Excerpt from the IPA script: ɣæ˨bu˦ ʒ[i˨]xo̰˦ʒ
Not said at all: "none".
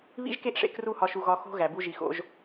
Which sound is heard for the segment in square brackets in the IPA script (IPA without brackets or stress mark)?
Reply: i˨